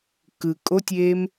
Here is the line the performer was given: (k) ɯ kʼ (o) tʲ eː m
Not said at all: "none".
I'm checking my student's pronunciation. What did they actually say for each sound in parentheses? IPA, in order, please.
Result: k, o

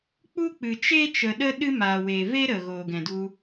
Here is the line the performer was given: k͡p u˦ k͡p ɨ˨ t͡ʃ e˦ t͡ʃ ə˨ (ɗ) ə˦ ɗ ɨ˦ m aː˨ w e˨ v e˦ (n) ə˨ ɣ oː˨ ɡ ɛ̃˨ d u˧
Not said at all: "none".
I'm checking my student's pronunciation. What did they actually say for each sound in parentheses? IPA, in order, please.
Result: ɗ, ɾ

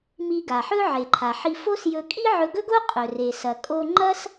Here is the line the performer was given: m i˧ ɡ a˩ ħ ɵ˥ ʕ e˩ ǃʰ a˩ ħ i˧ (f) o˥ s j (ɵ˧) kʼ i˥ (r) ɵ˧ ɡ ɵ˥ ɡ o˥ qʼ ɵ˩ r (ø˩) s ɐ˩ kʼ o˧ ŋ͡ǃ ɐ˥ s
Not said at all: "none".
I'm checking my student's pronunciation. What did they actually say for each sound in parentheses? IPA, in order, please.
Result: f, ɵ˧, ʕ, e˩

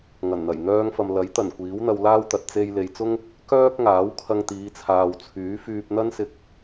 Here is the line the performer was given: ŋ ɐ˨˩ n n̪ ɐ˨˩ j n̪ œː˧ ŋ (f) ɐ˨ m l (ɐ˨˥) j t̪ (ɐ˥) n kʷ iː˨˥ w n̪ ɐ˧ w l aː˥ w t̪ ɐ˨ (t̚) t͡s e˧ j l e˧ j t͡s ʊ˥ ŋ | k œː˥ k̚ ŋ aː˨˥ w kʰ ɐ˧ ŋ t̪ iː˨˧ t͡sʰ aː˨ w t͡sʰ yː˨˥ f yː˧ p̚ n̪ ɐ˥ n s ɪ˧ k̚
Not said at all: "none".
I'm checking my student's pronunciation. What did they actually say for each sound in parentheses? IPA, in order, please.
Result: f, ɐ˨˥, ɐ˨˩, t̚

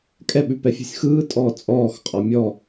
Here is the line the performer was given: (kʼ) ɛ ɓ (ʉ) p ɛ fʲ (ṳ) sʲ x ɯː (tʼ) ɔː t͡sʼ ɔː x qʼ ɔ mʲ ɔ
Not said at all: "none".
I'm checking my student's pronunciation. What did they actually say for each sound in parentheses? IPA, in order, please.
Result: kʼ, ʉ, ṳ, tʼ

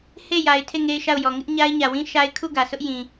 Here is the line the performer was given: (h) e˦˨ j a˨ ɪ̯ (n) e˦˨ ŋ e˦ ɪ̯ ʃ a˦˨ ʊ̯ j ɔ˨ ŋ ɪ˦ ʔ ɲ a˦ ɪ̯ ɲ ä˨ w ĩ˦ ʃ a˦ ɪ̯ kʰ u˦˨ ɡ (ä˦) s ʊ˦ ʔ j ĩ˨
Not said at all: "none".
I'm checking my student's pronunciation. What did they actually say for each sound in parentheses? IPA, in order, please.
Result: h, tʰ, ä˨

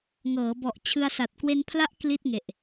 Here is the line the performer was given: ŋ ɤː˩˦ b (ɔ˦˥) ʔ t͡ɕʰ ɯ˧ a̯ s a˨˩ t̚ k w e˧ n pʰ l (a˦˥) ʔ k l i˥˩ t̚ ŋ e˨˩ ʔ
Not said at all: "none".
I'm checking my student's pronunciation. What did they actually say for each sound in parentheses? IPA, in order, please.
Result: ɔ˨˩, a˦˥

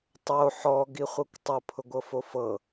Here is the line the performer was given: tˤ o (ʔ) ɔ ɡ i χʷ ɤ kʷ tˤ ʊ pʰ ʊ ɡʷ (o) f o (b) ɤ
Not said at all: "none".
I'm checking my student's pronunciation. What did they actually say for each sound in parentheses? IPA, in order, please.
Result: ħ, ɤ, f

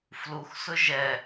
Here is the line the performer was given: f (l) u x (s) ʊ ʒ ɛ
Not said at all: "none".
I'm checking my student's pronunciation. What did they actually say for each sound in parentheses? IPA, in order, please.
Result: l, s

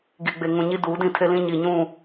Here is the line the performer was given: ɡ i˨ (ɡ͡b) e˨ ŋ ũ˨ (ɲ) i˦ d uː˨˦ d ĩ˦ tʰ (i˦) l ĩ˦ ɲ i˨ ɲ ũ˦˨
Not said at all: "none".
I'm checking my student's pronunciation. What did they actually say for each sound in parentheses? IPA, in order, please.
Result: ɡ͡b, ɲ, e˦

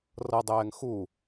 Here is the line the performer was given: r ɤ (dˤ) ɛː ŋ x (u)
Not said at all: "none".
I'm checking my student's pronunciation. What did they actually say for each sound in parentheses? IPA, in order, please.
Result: dˤ, u

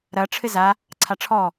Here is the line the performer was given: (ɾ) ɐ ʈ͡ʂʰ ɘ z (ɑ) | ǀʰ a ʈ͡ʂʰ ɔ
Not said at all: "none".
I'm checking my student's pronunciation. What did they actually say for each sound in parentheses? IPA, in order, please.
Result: ɾ, a

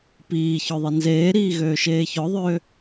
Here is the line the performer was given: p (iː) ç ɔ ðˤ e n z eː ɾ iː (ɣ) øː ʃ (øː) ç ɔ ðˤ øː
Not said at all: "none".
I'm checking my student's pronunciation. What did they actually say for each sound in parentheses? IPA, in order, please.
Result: iː, ɣ, eː

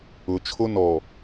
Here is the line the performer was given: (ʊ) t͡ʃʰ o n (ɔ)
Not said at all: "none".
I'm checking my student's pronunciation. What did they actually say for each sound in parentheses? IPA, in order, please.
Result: ʊ, ɔ

